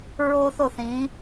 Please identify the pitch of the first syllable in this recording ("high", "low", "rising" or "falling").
high